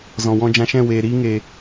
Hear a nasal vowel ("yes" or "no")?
yes